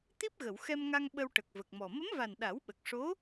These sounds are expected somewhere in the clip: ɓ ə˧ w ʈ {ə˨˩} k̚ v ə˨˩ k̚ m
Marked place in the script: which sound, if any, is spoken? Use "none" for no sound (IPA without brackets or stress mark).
ə˨˩